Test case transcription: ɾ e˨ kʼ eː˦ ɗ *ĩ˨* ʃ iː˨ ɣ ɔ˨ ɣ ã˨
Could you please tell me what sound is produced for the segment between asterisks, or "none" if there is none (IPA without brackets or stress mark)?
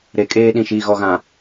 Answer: ĩ˨